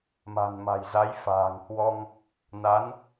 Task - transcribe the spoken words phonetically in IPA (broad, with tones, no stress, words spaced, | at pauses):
ma̤˨˩nma̤˨˩jza˨˦jfa̤ː˨˩ŋ hwɔ˧ŋ | na˨˦n